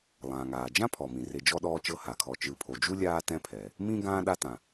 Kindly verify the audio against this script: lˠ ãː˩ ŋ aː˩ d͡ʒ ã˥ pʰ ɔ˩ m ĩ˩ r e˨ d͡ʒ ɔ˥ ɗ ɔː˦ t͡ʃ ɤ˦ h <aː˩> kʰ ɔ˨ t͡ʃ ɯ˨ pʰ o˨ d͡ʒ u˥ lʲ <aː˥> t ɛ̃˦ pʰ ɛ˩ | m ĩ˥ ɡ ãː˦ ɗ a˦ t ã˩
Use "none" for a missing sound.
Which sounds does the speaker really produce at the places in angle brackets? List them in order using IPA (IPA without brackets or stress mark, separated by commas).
a˩, aː˥